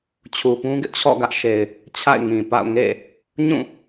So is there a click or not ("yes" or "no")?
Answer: no